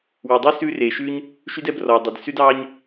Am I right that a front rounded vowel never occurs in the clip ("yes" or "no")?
no